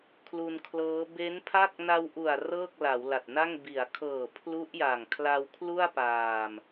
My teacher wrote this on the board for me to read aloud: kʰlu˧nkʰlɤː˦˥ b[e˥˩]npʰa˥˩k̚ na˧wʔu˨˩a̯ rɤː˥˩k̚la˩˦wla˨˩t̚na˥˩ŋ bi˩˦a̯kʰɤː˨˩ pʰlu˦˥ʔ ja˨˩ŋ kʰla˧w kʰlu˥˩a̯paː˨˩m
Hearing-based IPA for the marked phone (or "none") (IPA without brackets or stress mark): e˦˥